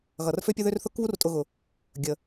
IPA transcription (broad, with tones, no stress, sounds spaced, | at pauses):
ɣ ʌ˩ r f ø˦ pʲ ʊ˦ ð ø˦ r θ ʊ˦ k β u˦ r tʼ ʊ˨ ɣ ʊ˩ | ɡʲ ə˩